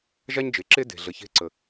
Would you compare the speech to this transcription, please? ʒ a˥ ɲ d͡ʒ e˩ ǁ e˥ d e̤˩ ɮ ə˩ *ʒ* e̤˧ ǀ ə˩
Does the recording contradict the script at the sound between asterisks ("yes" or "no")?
yes